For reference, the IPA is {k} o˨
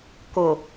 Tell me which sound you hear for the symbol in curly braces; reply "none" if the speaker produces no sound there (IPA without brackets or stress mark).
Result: k